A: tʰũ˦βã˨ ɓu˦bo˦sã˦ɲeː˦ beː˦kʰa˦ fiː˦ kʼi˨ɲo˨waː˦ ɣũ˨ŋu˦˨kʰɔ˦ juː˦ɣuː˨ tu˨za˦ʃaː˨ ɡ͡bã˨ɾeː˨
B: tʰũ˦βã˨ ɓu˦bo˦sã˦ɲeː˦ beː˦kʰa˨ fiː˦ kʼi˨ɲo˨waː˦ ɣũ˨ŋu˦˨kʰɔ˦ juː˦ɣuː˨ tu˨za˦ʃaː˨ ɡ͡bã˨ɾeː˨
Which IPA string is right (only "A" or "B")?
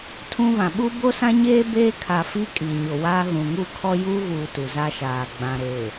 B